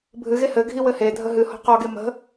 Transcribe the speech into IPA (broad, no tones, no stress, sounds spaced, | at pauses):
bʱ ɨ ɣ e h ɘ ɡʱ i w ɘ h e dʱ ə ɦ ɨ h ɔ̤ q ɔ ɡ e m ə̤